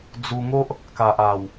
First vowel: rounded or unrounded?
rounded